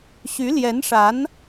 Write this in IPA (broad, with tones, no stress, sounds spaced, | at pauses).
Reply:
ɕ y˧˥ l j ɛ˧˥ n ʂ a˧˥ n